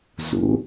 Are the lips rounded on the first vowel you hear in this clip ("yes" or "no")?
yes